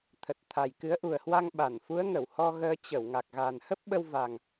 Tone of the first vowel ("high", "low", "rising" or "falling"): low